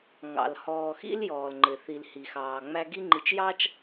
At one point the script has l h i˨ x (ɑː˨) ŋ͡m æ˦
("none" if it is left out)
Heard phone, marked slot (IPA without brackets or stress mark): ɑː˨